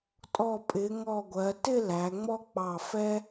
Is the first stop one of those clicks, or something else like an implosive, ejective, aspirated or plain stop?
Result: ejective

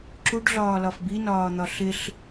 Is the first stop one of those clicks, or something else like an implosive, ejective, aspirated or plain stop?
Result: click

